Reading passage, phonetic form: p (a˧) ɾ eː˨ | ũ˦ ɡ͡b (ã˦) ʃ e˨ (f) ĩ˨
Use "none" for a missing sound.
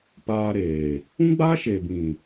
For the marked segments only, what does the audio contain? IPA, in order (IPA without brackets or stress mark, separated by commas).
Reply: aː˧, a˦, b